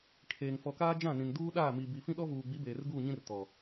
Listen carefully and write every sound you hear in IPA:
kʰ eː˨ ŋ f ɔ˨ k aː˦ d͡ʒ ã˦˨ n ĩ˨ n d uː˦ ɗ aː˦˨ m i˨ b i˨ f ĩ˦ ɗ ɔ˦ v uː˨ ɡ͡b i˨˦ b eː˨ r ɡ uː˦˨ ɲ ĩ˦ r t ɔ˨

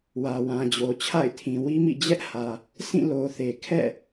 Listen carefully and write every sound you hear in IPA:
w ä˨ w ã˨ d͡ʑ o˨ t͡ɕʰ a̰˦˨ ɪ̯ tʰ ĩ˨ w i˦ m ḭ˦˨ d͡ʑ ɛ˦ ʔ h ä˨ | sʰ ĩ˦˨ l o˨ θ e˨ kʰ ɛ̰˦˨

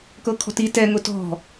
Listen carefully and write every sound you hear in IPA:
k ɤ kʰ ɔ̤ t i t ɛ ŋ ʊ t ɔ̤

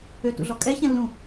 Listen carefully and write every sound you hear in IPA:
ø t ṵ ɮ ɔ kʼ ɛ ç ɛ̃ lː ũ

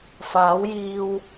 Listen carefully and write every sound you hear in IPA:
f aː˨˥ w j iː˧ w

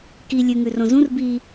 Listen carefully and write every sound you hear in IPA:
k i lʲ ʉ ŋ ʉ r õ z ũ r b i

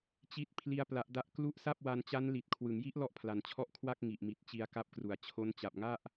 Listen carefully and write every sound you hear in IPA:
t͡ɕ i˦˥ t̚ pʰ l i˦˥ a̯ p l a˦˥ ʔ d a˥˩ ʔ k l u˦˥ ʔ s a˥˩ p̚ w a˧ n t͡ɕ a˦˥ n l i˨˩ t̚ kʰ w ɯ˩˦ ŋ j i˦˥ ʔ l ɔ˥˩ ʔ pʰ l a˨˩ n t͡ɕʰ ɔ˥˩ ʔ kʰ w a˥˩ k̚ ŋ i˨˩ ʔ m i˨˩ t̚ t͡ɕ i˧ a̯ k a˦˥ p̚ k r u˨˩ a̯ t͡ɕʰ o˦˥ n t͡ɕ a˨˩ p̚ ŋ a˥˩ ʔ

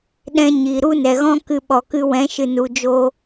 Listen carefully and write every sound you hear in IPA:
ɗ ɛ̃˧ ɲ i˨ ɾ u˦ n ɛ˨ ɣ ɔ̃˦ k ɨ˧ ɓ ɔ˨ k ɨ˧ w ɛ̃˨˦ ʃ ɨ˨ n u˨ d͡ʒ o˧

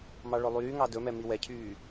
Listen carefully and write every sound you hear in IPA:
m ɑ ɭ ɵ lˠ yː ŋ ɑ d ɵ m ɛ m i w ɛ cʰ yː

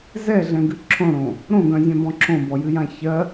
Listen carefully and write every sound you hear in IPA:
z ɛ ɮ ɛ̃ ɡ ɨ ǁʰ õ ɽ õ | ɾ õ ɡ œ̃ zʲ œ̃ b ɔ̃ ǁʰ õ b ɔ j ɨ j ã ç ɜ

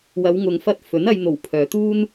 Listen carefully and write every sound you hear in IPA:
w ɐ˨˧ w ŋ ʊ˨ ŋ f ɐ˧ t̚ f ɵ˨˥ n ɐ˧ j n̪ o˨˩ w pʰ œː˨ t̪ uː˥ n

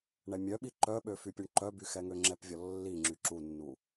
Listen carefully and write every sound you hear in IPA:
ɳ ɛ mʲ œ ɓ i ǃ œ ɓ ø f y pʲ u ɳ ǃ œ b y x ɛ ŋ ø ŋ͡ǁ ɛ p vʲ ɔ lː i ŋ͡ǁ y ǁ u nː u

